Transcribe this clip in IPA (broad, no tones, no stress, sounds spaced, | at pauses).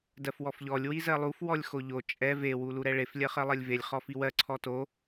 d ɜ f w ɔ f ʎ ɔ lʲ w i z ɜ lˠ u f w ɔ lʲ x o ʎ o t͡ʃʼ ɛ v e w u l u ɾ ɛ ɭ e f lʲ ɜ χ ɜ lˠ ɜ lʲ v e lʲ χ ɔ f i w ɜ ǀʰ ɔ t o